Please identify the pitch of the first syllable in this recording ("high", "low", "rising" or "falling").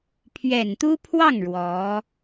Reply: low